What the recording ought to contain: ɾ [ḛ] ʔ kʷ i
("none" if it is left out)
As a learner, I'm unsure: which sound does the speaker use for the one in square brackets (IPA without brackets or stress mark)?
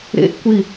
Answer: ḛ